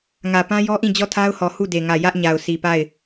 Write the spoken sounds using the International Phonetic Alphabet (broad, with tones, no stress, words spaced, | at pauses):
ŋä˨pã˦jɔ˦ʔĩ˦˨ d͡ʑɔ˦˨tʰa˦ʊ̯hɔ˨ hu˦˨de˨ŋä˨ jä˦ʔɲa˨ʊ̯ sʰi˨pa˦˨ɪ̯